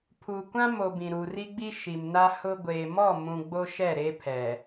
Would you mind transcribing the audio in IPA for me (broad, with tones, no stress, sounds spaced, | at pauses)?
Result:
pʰ u˨ kʷ ã˦ m o˨ b ĩ˨ ɾ u˨ r i˦ ɡ͡b i˦ ʃ i˨ m n a˦ h ʊ˦ ɡʷ eː˨ m ɔ˦˨ m ũ˨ ɡ͡b o˦ ʃ ɛ˦˨ ɾ e˦ pʰ ɛ˨